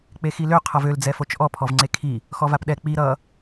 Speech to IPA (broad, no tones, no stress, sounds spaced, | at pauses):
k͡p e x i l ø qʰ ʌ v ø l d͡z ɛ f o t͡ʃ ʔ ɔ pʰ ɔ v ŋ͡ǀ e kʰ i | x ɔ v a p ɗ ɛ k͡p i ɾ ʌ